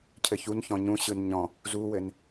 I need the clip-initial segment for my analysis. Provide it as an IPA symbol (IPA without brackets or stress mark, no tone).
cʰ